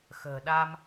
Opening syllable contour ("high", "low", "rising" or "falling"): low